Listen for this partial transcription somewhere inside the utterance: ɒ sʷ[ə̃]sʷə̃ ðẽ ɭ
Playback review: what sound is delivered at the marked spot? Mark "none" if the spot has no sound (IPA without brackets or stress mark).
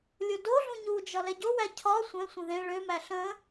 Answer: ɛ̃